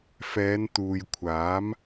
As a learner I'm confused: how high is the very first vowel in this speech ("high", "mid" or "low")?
mid